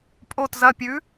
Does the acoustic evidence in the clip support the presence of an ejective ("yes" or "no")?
yes